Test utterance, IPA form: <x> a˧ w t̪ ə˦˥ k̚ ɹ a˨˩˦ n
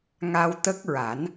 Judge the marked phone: incorrect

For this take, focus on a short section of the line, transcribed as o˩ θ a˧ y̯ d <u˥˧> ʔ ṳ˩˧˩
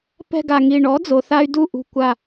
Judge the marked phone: correct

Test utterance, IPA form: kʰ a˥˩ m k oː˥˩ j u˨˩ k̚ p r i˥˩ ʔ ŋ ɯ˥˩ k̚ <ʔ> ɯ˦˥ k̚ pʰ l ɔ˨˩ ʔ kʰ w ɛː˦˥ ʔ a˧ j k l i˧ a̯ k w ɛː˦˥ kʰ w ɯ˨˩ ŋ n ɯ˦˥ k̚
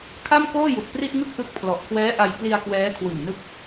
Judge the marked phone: correct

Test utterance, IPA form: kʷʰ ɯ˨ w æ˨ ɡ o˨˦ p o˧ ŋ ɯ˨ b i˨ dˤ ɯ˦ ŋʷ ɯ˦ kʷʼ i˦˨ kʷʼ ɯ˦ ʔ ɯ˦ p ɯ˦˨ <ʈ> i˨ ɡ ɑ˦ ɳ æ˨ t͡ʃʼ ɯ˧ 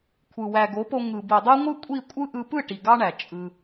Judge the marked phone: correct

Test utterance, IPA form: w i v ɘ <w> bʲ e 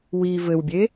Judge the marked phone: correct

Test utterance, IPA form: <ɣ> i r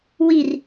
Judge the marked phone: incorrect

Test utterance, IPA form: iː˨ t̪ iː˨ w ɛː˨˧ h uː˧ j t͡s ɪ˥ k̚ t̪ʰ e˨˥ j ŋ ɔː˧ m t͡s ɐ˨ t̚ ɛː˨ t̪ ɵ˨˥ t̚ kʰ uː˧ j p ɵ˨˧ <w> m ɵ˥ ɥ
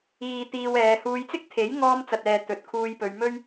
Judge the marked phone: incorrect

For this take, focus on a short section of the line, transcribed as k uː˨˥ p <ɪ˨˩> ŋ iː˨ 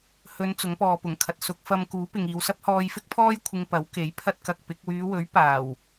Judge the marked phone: incorrect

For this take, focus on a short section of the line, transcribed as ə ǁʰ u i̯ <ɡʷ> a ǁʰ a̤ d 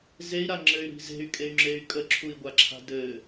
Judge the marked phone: correct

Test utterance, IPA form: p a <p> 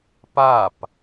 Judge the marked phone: correct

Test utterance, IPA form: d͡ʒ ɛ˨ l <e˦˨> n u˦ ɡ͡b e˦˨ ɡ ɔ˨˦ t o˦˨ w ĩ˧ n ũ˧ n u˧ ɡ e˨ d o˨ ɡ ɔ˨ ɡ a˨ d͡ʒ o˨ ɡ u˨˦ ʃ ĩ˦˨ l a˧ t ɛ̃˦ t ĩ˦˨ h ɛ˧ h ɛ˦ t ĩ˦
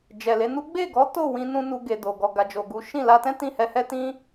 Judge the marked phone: incorrect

